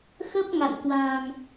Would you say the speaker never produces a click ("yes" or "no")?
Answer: yes